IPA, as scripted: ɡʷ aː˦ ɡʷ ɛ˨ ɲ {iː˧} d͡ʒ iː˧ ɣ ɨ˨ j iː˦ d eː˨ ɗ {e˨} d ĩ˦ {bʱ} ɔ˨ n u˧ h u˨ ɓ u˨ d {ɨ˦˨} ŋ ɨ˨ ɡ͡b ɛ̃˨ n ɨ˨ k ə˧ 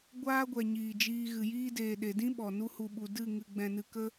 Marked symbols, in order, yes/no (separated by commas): no, yes, no, yes